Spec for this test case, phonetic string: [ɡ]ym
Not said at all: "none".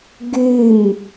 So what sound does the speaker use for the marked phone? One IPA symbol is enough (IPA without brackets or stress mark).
ɡ